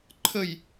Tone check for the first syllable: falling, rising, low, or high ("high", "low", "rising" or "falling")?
falling